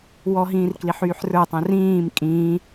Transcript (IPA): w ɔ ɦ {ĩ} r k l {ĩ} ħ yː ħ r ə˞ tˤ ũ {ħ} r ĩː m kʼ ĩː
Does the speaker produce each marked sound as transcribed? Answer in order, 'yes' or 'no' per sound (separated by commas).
no, no, no